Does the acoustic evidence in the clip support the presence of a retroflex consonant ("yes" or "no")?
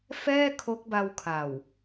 no